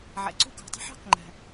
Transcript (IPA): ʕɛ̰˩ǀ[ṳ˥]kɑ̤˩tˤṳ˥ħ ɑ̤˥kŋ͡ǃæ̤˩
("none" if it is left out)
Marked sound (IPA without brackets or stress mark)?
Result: ṳ˥